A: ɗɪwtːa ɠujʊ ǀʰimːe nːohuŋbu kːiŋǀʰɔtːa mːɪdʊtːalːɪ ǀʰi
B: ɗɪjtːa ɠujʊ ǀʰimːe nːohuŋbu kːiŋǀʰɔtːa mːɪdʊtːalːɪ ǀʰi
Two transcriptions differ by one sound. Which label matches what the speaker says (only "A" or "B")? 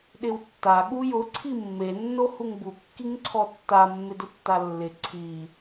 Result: A